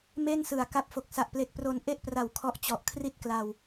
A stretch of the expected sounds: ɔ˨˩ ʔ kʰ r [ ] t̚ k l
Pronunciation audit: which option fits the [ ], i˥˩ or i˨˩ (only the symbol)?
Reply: i˥˩